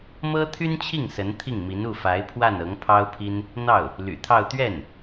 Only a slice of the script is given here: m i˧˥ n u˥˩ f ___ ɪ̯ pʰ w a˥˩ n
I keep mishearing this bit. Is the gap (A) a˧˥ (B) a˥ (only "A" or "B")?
A